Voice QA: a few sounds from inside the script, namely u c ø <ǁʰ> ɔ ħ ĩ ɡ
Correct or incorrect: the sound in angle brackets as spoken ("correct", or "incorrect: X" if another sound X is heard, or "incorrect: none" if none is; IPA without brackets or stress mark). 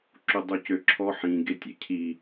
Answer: correct